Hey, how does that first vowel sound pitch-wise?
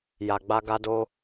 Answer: low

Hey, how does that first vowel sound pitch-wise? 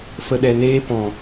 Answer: low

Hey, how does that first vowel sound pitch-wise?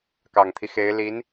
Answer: low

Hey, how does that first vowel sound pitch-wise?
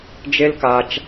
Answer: high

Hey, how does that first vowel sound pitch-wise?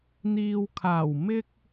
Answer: low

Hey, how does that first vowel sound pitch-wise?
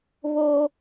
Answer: high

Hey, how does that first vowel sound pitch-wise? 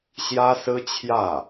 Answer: high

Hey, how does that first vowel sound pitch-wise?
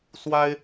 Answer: high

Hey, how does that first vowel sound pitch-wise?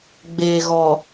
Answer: low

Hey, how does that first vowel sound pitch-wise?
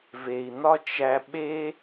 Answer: low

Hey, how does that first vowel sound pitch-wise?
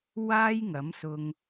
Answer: high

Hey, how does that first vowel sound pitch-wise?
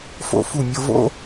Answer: falling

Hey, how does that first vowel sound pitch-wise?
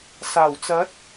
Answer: low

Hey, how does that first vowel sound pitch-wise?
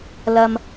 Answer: low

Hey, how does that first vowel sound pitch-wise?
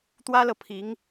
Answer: high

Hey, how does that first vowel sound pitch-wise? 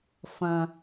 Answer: high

